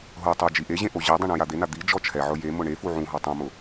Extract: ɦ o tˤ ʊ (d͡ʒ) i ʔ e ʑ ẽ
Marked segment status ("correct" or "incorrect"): correct